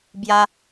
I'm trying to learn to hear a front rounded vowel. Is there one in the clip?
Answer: no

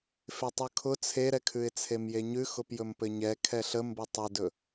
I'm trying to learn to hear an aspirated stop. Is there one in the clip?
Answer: yes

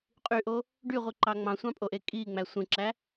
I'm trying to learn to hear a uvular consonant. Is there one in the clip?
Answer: yes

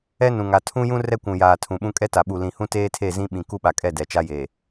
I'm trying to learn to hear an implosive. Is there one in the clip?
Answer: yes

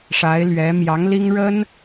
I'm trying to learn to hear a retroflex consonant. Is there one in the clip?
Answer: yes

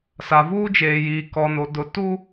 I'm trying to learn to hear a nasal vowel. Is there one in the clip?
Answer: no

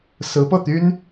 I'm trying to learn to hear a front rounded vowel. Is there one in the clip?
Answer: yes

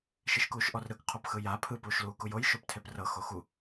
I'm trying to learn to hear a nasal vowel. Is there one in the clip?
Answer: no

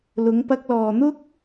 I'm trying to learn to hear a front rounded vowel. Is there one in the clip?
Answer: no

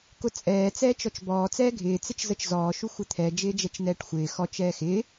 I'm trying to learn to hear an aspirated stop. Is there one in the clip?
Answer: yes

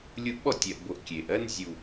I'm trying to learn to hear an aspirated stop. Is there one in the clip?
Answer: no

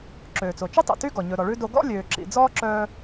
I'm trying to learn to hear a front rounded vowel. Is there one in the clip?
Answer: yes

